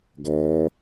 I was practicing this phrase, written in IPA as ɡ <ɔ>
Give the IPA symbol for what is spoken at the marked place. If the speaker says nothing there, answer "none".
ɔː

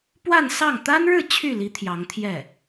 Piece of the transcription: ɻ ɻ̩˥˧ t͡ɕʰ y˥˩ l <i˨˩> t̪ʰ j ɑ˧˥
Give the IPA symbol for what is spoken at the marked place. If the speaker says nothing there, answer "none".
i˧˥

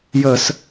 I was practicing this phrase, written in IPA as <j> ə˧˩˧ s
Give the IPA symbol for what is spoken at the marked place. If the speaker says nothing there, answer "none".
j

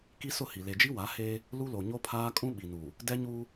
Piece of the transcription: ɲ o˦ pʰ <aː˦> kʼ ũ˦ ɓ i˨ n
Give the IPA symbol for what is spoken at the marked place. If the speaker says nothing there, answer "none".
aː˦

